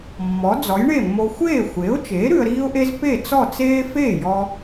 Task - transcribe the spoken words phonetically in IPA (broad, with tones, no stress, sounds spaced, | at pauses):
mː ɔ˩˥ d͡z ɔ˩˥ j ɳ e˥˩ mː o˧ xʷ eː˥˩ xʷ e˩˥ ʊ̯ t͡ʃ eː˩˥ ɾ ʉ˧ ə̯ ɾ iː˥ ʊ̯ ʔ e˥ z p e˥˩ t͡s ɔ˥˩ t͡s eː˥ f eː˥˩ j ɔ˧